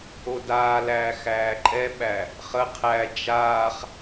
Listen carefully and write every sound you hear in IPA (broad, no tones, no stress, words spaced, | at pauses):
odaːlæː xæːǃʼɛɓæ | χə qʰæ d͡ʒaːχ